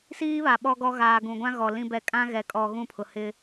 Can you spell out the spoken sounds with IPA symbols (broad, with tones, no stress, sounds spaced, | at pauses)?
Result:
s iː˦ β a˨ ɓ ɔ˦ ɡ ɔ˦ ɣ aː˨ ɡ ũ˨ ɡʷ ã˦ ɣ ɔ˨ l ĩ˦ b ɛ˦˨ kʼ ã˦ ɣ ɛ˨ kʼ ɔ˨ ɣ ũ˦˨ pʰ ʊ˨ h ɪ˦